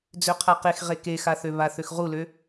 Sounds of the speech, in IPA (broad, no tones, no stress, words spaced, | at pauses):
d͡zøqʰaqexʁe kexaθø βaθøxʁulø